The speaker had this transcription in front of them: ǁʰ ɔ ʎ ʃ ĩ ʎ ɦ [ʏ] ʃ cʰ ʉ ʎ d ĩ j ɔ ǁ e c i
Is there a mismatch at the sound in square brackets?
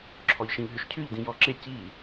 no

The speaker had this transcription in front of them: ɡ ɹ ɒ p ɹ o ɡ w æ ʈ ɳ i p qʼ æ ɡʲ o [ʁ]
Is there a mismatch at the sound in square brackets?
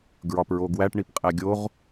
no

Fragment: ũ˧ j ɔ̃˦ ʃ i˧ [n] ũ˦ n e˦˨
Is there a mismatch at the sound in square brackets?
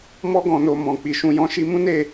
yes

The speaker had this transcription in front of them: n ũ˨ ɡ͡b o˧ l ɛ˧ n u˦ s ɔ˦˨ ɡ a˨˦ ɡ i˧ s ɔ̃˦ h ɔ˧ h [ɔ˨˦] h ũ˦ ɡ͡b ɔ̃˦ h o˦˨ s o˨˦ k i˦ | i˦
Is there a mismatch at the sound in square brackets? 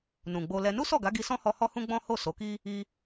yes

